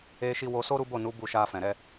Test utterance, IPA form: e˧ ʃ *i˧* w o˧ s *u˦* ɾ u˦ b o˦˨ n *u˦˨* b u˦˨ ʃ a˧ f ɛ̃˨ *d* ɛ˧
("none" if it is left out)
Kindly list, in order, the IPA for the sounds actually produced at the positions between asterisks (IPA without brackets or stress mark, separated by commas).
i˧, o˦, u˨˦, ɾ